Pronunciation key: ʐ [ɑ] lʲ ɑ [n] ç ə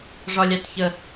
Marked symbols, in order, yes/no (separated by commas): no, no